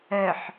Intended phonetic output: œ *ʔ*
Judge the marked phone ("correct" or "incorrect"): incorrect